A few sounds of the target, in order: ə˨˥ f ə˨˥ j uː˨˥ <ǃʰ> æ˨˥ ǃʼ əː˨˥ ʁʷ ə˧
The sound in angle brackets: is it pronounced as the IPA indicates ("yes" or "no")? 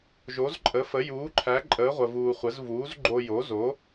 yes